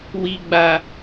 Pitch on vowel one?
low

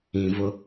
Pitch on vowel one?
low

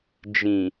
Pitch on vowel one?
low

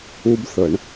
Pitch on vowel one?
high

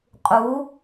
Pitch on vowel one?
rising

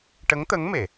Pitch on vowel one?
rising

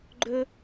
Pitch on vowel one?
high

